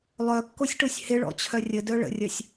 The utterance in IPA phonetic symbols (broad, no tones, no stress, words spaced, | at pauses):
lˠœkːosʲʈosʲ hɪɭɔ̰t͡ɕʰœ rʲədœ ɭə̰rʲɐsʲ